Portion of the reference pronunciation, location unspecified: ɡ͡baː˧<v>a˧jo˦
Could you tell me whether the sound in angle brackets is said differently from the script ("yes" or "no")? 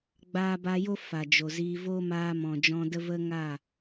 yes